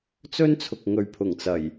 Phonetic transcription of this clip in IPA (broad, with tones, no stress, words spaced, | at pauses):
t͡sɵ˥nt͡sʰʊ˨k̚ ŋɵ˨ɥpʰʊ˨˩ŋt͡sɐ˨˩j